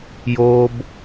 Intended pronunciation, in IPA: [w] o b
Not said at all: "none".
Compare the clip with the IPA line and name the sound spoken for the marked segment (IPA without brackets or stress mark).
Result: j